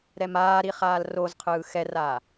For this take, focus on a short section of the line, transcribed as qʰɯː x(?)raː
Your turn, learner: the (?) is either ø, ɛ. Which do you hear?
ɛ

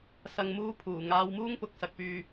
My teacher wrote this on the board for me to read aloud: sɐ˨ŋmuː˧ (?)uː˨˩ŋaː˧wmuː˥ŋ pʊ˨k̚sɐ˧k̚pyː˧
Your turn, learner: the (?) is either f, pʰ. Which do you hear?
pʰ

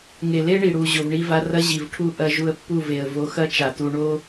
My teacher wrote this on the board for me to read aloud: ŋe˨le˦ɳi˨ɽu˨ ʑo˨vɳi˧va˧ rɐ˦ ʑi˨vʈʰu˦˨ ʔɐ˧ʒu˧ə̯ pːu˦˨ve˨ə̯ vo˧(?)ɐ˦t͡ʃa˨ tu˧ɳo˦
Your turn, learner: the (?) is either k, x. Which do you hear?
x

